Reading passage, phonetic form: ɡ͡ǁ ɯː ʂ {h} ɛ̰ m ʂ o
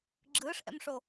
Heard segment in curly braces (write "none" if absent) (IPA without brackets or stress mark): ʔ